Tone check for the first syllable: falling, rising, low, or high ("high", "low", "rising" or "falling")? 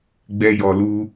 high